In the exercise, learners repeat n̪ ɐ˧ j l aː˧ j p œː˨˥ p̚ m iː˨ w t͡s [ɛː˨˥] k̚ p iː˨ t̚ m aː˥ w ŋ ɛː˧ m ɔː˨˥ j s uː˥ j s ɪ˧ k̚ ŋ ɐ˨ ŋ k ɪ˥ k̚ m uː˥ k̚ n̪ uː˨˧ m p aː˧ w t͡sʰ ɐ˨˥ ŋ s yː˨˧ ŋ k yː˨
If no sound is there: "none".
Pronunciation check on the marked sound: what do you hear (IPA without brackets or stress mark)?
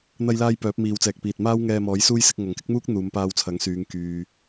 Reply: ɛː˨